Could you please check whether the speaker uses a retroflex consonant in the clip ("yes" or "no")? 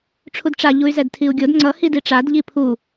yes